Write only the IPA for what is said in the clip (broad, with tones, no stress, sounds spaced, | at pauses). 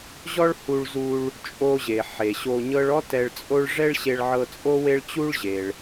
ʑ ɔ˥ ɭ h u˧ ɭ z u˧ ɭ | t͡ʃʼ o˧ ʑ e˩ ħ e˩ ɕ o˧ ɲ ɤ˥ ɭ ɔ˥ t ɛ˧ ɭ t͡sʼ o˥ ɭ ʐ ɛ˥ ɭ ɕ e˧ ɭ ʕ ɤ˧ t͡sʼ o˥ w e˥ ɭ t͡ɕ u˥ ɭ ʑ e˩ ɭ